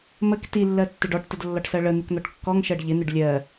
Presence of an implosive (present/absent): absent